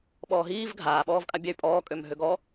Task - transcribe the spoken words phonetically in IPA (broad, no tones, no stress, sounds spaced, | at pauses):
ɓ ɔː ɦ iː v ɡʱ aː ɓ ɔː v kʼ a bʲ ɛ y̯ pʼ ɔː kʼ ø m ɦ ø ɡ ɔ